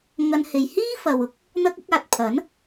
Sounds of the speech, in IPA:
ŋ ɐ˧ n h e˨ j h iː˥ f ɐ˨ w ʊ˨˥ k̚ | n̪ ɐ˥ k̚ ʊ˨˥ k̚ aː˨ t̚ pʰ ɐ˨˥ n

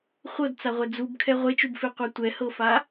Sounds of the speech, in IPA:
χʷ ɤ d t͡s a ʁʷ ɛ d͡z u b kʰ ɛ ʁʷ e t͡ʃ u b f e qʷ a tʷ ɛ h ɤ f a

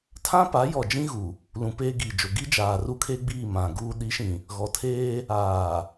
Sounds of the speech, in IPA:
tʰ ã˦ p a˨˦ j ɔ˨ d͡ʒ ĩ˦ ɣ u˨ | l ũ˨ p eː˦ ɡ iː˨ d͡ʒ o˨ ɡ i˦ d͡ʒ aː˨ r u˦ kʰ e˦ ɡ͡b iː˦˨ m ã˨ ɡ uː˦ ɗ i˨˦ ʃ ĩ˨ | ɣ ɔ˨ tʰ eː˦ | aː˨

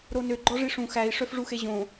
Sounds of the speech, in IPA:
ɾ o n ø ɡ͡ǃ ɔ ʐ i ʂ ũ x æ i̯ ʂ œ f ʐ u x e ʑ õ

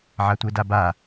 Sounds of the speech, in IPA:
ʕ a tʷ e d a b a

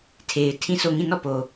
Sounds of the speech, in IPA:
tʰ e˨ ɪ̯ tʰ ĩ˦˨ s o˦˨ ŋ ĩ˦˨ n ɔ˦˨ p o˨

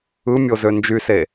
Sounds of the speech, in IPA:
ɯ mʲ o z ø n d͡ʒ y s e

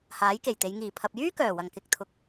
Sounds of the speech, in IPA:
h aː˨˥ j k e˨˩ j t̪ e˨˧ j ŋ iː˨˩ pʰ ɐ˨ p̚ j yː˥ k œː˨˩ w ɐ˨˩ ŋ k ɪ˨ k̚ t̪ʰ ʊ˨ k̚

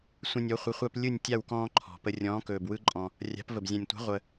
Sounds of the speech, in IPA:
sʷ ə̃˦ nʲ ɔ˨˥ χʷ ə˨˥ χʷ a˦ p lʲ ɯ˥˨ nʲ tʲ a˥˨ w k ɔ̃ː˦ ǃʰ ɔ̤˨˩ p ə˦ rʲ ɔ̃ː˨˥ k ɵː˨˩ b w ɯ˦ ǃʼ ɔ̃˨˩ | rʲ a̤˨˥ p v ə˨˩ b zʲ ã˨˩ nʲ tʷ a̤˨˥ ʁʷ ə˨˩

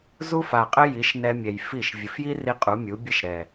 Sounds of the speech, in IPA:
z u˦ f a˨ qʼ ɘ˦ j i˨˦ ʃ n ɛ˧ mʲ ɛ˨ j f i˦˨ ʃ vʲ ɘ˨ f j i˦ r i˧ qʼ u˨˦ mʲ u˨˦ bʲ ɘ˦ ʃ ɾ ɛ˨

